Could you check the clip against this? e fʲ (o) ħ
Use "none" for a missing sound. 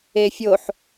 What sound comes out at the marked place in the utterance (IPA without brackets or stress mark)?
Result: o